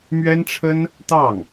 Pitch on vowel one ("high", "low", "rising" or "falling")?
high